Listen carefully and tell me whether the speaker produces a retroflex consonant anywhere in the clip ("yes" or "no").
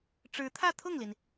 yes